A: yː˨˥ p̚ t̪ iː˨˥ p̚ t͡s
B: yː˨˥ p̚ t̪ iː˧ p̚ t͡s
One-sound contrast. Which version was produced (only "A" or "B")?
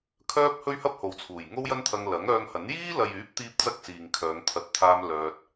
B